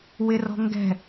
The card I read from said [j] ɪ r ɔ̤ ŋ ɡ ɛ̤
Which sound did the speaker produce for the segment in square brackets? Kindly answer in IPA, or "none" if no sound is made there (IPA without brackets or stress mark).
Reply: w